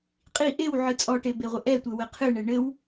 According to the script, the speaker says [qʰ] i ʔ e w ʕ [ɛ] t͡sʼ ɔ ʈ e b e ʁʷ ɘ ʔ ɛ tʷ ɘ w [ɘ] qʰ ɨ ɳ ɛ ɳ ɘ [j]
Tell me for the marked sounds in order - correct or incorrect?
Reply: incorrect: qʼ, incorrect: ɨ, correct, incorrect: w

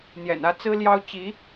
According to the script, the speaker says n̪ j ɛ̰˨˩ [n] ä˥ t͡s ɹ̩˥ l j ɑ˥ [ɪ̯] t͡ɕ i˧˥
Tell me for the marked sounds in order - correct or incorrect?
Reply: correct, incorrect: ʊ̯

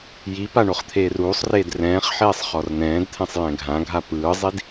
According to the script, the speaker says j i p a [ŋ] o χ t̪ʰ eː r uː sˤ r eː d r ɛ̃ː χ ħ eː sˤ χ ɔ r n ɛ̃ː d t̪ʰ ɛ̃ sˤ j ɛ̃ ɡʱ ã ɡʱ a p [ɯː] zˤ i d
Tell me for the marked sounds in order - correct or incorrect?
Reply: incorrect: ɳ, correct

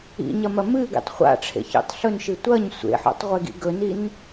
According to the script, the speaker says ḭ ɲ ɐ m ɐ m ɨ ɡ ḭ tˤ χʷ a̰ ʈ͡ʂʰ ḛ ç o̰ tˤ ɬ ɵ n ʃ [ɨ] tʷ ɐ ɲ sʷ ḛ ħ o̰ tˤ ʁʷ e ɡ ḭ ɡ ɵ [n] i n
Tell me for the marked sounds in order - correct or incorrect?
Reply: correct, correct

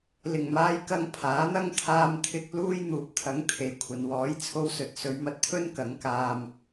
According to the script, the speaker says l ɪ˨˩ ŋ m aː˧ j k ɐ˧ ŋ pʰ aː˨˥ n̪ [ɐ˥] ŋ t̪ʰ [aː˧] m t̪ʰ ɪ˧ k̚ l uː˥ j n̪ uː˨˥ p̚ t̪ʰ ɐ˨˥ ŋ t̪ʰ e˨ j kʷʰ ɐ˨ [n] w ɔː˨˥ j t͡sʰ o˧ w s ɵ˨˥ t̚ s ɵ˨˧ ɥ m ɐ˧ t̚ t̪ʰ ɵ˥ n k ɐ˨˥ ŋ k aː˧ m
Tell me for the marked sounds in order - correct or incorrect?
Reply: correct, correct, correct

